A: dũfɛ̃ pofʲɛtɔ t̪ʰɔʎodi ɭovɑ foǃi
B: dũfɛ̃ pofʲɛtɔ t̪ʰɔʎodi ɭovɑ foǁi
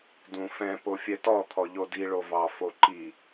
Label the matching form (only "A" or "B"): A